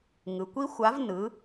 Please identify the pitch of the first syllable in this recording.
low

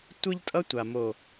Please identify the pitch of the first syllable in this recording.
high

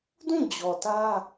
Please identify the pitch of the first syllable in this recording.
falling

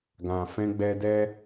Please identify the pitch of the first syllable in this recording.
low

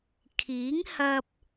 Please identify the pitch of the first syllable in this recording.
rising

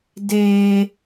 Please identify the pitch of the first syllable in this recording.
high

